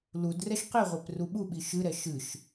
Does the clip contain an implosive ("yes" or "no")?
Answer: yes